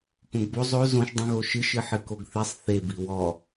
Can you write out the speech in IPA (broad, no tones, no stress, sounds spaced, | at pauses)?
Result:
p õ ɡ b o zˤ o z õ ʃ dˤ ə̃ ɣ o ʃ ɨ ʃ ɨ ħ ɨ k o ɡ θ i sˤ θ e b i w ɔ